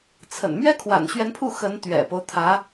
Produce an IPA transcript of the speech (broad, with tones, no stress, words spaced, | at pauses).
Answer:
t͡sʰə̰˨˩n mɥɛ˥kʰwa̰˨˩nɕɥɛ˧˥npʰu˥˩ xə˧˥nt̪ɥɛ̰˨˩po˦ʊ̯t̪ʰä˧˥